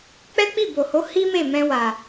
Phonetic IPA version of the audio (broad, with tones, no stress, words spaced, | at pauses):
k͡pɛ˦k͡pi˦˨bo˨ho˨˦ hi˦me˦˨ mɛ̃˧wa˨